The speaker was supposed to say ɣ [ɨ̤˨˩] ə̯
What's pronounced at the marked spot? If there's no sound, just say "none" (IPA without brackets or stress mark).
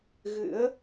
ɨ̰˧˥